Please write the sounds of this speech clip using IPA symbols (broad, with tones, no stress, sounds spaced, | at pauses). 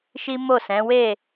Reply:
ʃ i˦ m o˦˨ s ɛ̃˨˦ w e˦˨